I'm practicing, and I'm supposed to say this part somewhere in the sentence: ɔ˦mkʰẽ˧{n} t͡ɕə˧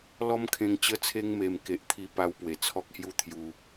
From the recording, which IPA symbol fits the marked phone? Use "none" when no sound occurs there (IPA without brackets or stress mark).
ŋ